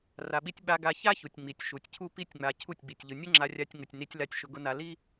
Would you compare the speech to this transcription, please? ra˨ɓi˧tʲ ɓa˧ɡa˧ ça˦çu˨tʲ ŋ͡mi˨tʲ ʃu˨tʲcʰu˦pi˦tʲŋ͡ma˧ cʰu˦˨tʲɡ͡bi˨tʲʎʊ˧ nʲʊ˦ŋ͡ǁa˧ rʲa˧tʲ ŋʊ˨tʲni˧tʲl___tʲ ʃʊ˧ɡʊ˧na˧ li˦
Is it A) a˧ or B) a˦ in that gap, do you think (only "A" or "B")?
A